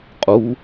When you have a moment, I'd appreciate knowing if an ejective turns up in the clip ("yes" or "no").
yes